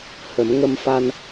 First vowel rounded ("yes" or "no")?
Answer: no